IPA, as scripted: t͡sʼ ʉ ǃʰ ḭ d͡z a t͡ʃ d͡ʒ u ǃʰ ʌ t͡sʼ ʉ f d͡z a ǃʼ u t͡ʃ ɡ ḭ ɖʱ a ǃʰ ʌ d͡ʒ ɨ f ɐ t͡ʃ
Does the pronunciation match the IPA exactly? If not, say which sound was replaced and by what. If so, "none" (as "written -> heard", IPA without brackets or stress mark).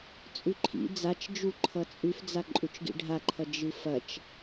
none